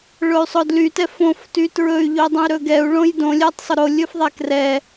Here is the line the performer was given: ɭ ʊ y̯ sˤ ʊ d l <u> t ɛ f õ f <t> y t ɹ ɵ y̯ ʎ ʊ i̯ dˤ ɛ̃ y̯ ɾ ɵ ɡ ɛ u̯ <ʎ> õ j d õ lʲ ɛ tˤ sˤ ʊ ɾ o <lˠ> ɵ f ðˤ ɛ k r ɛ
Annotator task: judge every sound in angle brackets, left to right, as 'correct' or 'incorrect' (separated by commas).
incorrect, correct, incorrect, incorrect